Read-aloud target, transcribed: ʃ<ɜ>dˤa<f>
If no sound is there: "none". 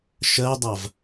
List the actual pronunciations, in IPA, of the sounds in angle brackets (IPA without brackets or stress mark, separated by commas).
ɜ, v